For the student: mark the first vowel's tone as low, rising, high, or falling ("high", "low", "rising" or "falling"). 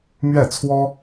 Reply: falling